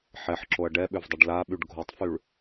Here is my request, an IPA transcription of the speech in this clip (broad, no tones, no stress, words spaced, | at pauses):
ħɛħǁoɐ̯ ɖɛɓʏvdˤɪɖ laɓyɖ ɡʱotˤfyɭ